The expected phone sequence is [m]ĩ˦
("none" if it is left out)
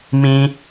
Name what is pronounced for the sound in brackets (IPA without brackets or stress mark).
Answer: m